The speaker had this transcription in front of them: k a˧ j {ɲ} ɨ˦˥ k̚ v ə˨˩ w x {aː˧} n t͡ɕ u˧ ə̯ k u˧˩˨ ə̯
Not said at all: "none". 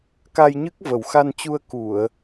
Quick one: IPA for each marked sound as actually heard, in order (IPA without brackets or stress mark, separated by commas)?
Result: ɲ, a˧